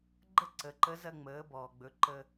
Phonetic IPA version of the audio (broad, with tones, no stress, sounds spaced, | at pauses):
ɡ͡ǃ ə˥ ǀ ə˩˧ ǃ ə˧˥ z ɐ˧ ŋ͡m əː˩˧ b ɔː˩ ɡ͡b ɵ˩˧ ǃ ə˧